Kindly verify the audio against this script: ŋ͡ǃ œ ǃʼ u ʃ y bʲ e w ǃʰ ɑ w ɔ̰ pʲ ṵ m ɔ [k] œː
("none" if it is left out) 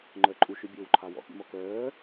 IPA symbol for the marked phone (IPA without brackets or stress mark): k